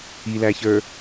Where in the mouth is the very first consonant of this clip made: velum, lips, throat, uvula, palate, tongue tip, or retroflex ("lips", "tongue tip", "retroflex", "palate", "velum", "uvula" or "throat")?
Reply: tongue tip